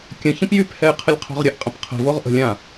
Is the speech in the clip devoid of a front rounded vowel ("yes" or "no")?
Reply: no